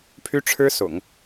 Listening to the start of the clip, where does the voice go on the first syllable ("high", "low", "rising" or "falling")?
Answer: high